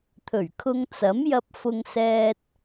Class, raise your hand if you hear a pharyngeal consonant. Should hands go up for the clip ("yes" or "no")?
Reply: no